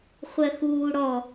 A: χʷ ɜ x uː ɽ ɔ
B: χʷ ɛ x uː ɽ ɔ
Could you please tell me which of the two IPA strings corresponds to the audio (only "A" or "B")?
A